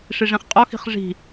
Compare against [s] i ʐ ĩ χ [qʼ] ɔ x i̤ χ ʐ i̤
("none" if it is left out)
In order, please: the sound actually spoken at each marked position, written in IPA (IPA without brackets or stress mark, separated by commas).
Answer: ʂ, qʼ